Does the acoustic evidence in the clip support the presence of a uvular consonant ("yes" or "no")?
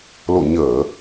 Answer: no